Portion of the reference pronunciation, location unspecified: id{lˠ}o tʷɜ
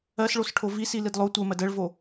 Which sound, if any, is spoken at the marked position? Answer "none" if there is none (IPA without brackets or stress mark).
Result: lˠ